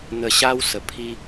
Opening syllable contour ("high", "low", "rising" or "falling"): low